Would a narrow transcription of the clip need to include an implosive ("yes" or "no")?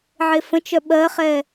yes